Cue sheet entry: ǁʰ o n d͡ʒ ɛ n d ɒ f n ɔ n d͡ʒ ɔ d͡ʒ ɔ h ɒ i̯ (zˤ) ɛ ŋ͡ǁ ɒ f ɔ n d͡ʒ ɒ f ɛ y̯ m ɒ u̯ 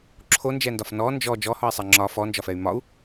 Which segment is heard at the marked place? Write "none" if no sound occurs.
sˤ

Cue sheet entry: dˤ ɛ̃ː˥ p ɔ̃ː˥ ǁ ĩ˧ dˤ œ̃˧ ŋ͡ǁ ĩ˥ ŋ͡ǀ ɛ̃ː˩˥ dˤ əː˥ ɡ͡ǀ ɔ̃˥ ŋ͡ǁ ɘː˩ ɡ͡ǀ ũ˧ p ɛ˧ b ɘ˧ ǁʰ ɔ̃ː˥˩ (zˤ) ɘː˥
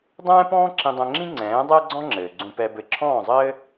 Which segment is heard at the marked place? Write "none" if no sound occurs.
zˤ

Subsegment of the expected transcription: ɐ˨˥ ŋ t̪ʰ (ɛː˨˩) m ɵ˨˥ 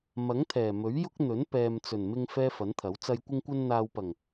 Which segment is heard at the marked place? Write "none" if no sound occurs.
ɛː˨˩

